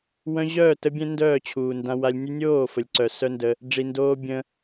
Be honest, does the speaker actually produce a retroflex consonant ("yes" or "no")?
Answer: yes